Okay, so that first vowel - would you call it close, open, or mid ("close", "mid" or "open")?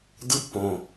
close